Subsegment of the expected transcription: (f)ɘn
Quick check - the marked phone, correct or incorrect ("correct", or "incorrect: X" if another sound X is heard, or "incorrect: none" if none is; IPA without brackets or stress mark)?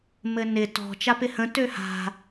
incorrect: m